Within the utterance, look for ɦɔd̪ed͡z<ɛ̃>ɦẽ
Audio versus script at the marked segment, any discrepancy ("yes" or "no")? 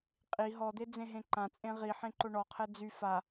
yes